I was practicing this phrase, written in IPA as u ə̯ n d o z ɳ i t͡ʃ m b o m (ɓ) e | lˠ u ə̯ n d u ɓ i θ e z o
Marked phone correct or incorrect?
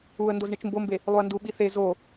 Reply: incorrect